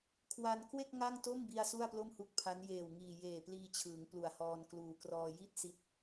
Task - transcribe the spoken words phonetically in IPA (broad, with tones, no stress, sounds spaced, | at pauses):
kʰ w a˧ n k w e˥˩ k̚ ŋ a˥˩ ŋ t o˥˩ m b i˧ a̯ s u˥˩ a̯ p l o˥˩ m h u˦˥ k̚ pʰ a˦˥ n j eː˨˩ w ŋ iː˨˩ j eː˨˩ p l iː˧ t͡ɕʰ ɯː˩˦ ŋ p l u˨˩ a̯ h ɔː˧ n k l uː˩˦ k r ɔː˧ j i˥˩ t̚ s i˦˥ t̚